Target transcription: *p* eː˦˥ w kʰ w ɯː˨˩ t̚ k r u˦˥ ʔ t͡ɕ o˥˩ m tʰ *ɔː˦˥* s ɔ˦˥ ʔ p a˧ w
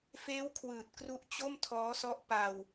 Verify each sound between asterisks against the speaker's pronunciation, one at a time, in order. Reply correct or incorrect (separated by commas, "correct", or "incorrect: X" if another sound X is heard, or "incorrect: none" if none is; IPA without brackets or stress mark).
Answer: incorrect: f, correct